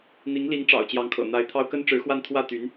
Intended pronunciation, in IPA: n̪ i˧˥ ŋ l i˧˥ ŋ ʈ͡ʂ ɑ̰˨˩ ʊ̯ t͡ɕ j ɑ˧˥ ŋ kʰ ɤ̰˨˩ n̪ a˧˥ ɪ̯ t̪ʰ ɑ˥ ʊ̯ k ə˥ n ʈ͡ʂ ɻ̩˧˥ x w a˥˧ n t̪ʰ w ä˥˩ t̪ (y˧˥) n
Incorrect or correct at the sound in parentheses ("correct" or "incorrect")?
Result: correct